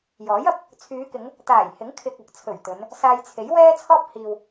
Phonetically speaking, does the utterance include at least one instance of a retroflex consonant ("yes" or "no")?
no